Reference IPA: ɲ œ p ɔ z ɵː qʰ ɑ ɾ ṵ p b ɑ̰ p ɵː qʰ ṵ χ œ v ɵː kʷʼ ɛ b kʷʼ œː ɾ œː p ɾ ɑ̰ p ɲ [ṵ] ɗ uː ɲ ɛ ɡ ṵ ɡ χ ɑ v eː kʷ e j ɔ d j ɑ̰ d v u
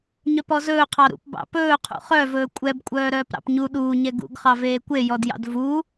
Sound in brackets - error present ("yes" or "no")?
yes